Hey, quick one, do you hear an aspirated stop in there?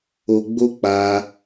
no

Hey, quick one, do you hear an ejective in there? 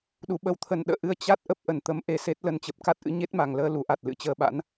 no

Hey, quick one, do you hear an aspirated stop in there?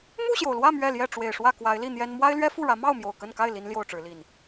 no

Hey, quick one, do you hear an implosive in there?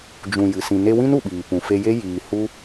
yes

